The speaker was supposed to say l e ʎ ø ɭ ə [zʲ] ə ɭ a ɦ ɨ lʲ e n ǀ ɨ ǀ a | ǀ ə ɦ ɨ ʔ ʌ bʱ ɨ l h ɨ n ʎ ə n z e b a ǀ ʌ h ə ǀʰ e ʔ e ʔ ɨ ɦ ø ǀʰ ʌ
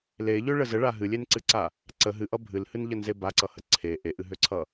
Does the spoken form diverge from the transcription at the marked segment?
yes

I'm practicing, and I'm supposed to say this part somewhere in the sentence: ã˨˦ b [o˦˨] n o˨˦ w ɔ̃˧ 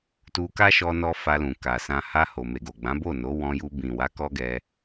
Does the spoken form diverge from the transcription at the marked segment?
no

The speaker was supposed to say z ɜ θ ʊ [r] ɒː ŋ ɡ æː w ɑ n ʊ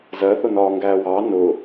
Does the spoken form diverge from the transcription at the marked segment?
yes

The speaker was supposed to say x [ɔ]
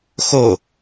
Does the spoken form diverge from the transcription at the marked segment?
yes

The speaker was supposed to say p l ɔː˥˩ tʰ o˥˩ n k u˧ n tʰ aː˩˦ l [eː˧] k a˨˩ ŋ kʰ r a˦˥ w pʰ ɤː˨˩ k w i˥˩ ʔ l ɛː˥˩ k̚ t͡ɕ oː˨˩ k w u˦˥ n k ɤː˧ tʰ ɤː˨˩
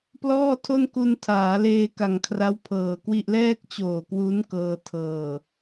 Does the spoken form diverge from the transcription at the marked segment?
no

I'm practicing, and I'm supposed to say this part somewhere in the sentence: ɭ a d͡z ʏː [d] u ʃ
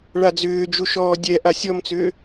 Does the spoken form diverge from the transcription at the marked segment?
yes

